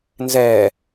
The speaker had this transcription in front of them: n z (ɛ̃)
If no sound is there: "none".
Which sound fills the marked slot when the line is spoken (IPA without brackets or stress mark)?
ɛ